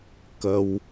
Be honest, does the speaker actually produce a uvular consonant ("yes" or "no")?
no